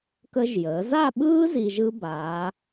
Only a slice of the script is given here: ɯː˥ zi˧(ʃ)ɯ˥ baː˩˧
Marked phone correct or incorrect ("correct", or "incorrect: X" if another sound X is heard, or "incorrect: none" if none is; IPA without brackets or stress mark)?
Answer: incorrect: ʒ